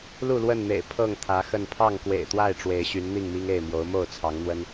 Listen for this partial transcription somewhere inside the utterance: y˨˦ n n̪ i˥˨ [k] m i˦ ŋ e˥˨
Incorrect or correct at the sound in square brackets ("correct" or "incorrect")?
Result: incorrect